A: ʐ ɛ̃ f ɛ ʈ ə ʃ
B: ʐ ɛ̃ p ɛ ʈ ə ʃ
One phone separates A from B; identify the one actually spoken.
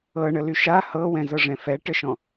A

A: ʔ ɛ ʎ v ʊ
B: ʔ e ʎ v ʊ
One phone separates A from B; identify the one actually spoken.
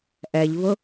A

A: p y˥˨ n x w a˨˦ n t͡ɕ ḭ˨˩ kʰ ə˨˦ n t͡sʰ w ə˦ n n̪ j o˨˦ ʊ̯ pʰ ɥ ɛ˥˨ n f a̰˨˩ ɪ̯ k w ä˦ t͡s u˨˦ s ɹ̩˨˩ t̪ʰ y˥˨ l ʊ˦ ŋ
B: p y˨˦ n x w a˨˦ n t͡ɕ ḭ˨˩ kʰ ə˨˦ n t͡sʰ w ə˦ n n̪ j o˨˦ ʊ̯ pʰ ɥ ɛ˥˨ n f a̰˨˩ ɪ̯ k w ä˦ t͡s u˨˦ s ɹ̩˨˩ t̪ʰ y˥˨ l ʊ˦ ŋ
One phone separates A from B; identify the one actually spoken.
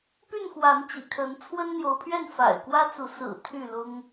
A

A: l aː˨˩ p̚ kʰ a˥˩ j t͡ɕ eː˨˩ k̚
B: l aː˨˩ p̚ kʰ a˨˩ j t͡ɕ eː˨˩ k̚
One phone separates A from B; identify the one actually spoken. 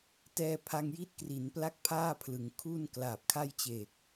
A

